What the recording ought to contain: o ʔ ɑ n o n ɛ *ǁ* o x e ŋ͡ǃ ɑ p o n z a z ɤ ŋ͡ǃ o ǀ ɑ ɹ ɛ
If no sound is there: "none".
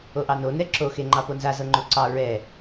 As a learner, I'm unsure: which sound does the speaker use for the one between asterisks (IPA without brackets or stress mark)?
ǁ